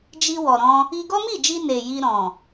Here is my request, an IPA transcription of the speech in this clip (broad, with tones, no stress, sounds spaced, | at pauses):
d͡ʒ i˧ w ɔ˨ ɾ ɔ̃˧ | i˧ ɡ ɔ˦ m i˦˨ d͡ʒ i˧ n e˨ j i˧ ɾ ɔ̃˨